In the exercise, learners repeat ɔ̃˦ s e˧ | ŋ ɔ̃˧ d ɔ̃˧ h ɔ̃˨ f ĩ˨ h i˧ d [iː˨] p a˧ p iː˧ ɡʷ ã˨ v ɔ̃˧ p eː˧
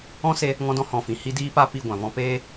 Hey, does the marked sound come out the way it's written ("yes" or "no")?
no